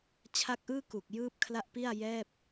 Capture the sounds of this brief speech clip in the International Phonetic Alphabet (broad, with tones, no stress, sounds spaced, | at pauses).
t͡ɕʰ a˦˥ k̚ ʔ ɯː˥˩ k u˨˩ k̚ j ɯː˦˥ p̚ kʰ l a˦˥ ʔ p i˥˩ a̯ j ɛː˥˩ p̚